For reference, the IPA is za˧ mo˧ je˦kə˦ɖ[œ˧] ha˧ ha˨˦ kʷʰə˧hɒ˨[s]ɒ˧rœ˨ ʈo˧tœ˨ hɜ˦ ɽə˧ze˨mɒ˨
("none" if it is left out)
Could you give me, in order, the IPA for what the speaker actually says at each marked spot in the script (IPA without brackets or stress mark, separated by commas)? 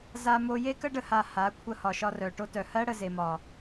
ə˧, ʃ